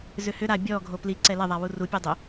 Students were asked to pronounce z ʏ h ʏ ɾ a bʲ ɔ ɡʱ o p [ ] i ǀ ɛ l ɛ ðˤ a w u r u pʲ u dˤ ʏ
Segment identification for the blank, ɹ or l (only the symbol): l